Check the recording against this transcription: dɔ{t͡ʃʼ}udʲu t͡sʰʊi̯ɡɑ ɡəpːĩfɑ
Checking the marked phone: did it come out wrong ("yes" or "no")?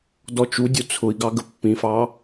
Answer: yes